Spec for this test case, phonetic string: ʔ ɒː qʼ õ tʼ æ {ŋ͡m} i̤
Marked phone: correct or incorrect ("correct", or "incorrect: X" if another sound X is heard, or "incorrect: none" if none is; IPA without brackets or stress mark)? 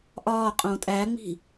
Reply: correct